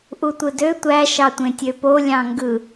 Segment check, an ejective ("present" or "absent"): absent